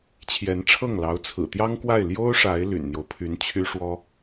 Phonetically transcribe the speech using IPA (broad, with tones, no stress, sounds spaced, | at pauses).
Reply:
t͡ɕʰ j ɛ˧˥ n ʈ͡ʂʰ ɤ˥˩ ŋ l ɑ˧˥ ʊ̯ t͡sʰ ɹ̩˨˩ t̪ j ɑ˥ ŋ k w a˥˩ ɪ̯ l j o˥ ʊ̯ ʂ a˧˥ ɪ̯ l y̰˨˩ n n̪ j o˦ ʊ̯ pʰ y˧˥ n t͡ɕʰ y˥ ʂ w ɔ˥